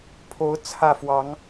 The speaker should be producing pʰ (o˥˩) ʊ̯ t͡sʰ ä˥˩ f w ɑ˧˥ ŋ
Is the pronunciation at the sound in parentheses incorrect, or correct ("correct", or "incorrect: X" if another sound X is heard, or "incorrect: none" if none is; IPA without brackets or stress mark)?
incorrect: o˧˥